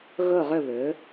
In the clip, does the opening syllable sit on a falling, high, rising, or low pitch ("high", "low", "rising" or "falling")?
falling